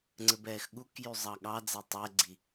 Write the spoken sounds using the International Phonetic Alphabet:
ŋ͡ǀɘbɛːxɠukjy zˤɑɠɑd͡zɛ tˤɛɡ͡ǀi

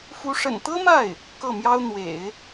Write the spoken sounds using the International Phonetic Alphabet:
fu˧˥ʂə̰˨˩nt̪ɤ˥ma˥˩ɪ̯ | kɤ˥˩mjɑ˥ʊ̯ n̪wḛ˨˩˦ɪ̯

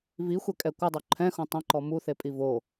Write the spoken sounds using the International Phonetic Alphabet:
vixʷɛkʼɛ kʷɪdˤo ǃʰɛ̃xõ tˤɛ̃ǃɔ muθepʼi vo

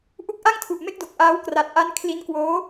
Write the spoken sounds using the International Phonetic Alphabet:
ʔu˦˥k̚ʔa˥˩ŋtʰu˨˩ʔ me˥˩k̚do˨˩k̚ʔaː˦˥w kra˨˩t̚ʔa˧n kʰli˦˥nkwoː˦˥

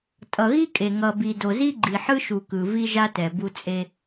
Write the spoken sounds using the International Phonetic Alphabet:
tʼʌ˨ɣi˦kʼe˨ ŋʌ˨bi˨do˨ zi˦ɡ͡ǃi˨ħɯ˦ʃu˨ kɯ˨ vi˦ʒa˦tɛ˨ bu˦ t͡sʼe˦

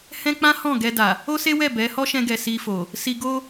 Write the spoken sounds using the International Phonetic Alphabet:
hɛ̃˦ k͡pã˦hɔ̃˦˨ ɡɛ˧da˨ | o˦se˦wɛ˦˨ bɛ˨˦ hɔ˦ʃɛ̃˧ɡɛ˨ si˧fo˨ | si˧ɡo˦

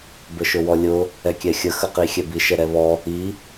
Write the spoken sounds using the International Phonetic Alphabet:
bəʃʊwɔlʲʊ | ɛkʲɛxʲə xəqixʲɛbi ʃɛɾɛβɔ | i

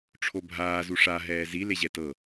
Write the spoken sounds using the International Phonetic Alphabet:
ʈ͡ʂʰobʱaː zuʂa ɦɛːzi leʑɛtɤ

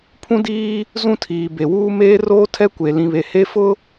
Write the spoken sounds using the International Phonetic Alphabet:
pʰũ˦diː˦ | zũ˦tʰiː˨ be˨wuː˦ meː˦roː˦tʰɛ˦kʷe˨ lĩ˨βe˨ he˦fʊ˦

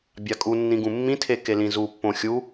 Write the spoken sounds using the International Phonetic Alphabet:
bʲakʼunːĩ ɡũmːĩtʰe kelĩzupːõ xʲu

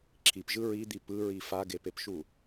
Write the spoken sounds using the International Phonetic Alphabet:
ǁʰipʒɯ ɹid̪i pɯɹi faɡepepʃu

